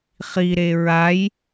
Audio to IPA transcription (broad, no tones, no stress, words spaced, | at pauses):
χiɾe ɹaj